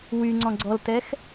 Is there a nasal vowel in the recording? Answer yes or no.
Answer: yes